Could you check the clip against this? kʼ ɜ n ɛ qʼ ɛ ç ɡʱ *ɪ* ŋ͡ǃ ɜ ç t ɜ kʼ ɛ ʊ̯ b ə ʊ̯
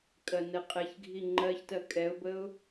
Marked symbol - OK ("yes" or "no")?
no